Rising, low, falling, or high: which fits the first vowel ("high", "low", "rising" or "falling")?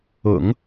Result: low